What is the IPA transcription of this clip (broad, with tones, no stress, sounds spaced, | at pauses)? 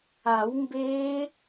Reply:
a˨˩˦ w m b eː˦˥